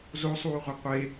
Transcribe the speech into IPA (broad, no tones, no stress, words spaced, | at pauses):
zosˤuːʁʷʌ qʷe